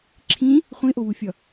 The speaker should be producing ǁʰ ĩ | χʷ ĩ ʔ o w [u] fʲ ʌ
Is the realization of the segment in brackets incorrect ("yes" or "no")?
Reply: no